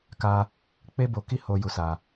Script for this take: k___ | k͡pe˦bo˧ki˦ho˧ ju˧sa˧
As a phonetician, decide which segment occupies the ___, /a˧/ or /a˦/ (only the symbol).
a˧